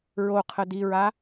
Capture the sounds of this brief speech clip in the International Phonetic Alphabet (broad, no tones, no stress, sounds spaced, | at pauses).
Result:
ɹ o qʰ ə d i ɹ a